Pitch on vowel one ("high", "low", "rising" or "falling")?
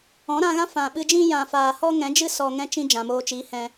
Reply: rising